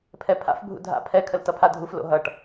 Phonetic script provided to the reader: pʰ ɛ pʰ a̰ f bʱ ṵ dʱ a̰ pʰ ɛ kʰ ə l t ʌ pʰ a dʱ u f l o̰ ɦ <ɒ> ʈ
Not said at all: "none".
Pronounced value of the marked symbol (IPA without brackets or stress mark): ʌ